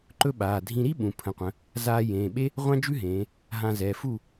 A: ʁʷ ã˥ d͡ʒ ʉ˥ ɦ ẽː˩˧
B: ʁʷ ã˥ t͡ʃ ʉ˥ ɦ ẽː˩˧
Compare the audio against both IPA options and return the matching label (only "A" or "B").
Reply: A